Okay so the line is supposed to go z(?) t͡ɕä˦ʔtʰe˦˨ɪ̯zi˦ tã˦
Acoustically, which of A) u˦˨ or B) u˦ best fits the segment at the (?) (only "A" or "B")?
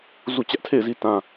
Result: A